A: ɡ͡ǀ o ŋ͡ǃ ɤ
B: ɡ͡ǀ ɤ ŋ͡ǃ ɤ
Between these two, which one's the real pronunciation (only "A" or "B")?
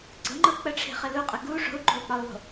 B